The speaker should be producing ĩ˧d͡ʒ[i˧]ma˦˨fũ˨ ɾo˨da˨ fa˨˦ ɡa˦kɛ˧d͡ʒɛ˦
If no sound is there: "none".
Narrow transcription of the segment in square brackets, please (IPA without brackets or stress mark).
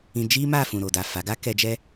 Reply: i˦